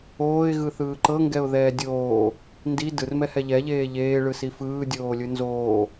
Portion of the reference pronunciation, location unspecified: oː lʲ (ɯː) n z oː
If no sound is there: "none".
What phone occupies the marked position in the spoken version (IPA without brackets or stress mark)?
ɯ